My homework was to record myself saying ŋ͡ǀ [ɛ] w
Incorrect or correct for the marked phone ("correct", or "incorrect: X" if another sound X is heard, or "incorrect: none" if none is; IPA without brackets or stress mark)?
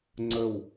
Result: incorrect: ə